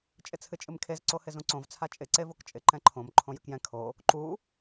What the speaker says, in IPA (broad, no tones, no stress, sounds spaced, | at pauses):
t͡ʃʼ ɪ t͡sʰ ɨ t͡ʃʼ ɨ m kʰ e z ǀ o h ɪ z ũ ǀ õ v t͡sʰ a t͡ʃʼ ɪ ǀ e v o k t͡ʃʼ ɪ ǃ ɛ̃ ǃʰ õ m ǃʰ õ j ʉ k j ɛ̃ kʰ o | ǃ u